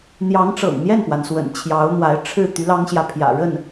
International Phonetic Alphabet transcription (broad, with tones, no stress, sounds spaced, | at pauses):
n̪ j ɑ˧˥ ŋ ʈ͡ʂ ɤ̰˨˩ ŋ n̪ j ɛ˥˩ n p w a˩ n s w ə̰˨˩ n t͡ɕʰ j ɑ˧˥ ʊ̯ n̪ w a˧˥ ɪ̯ ʈ͡ʂʰ ɻ̩˥˩ t̪ y˧˥ l ɑ˥ ŋ ɕ j ä˨ pʰ j ä̰˨˩ ɻ ə˥˩ n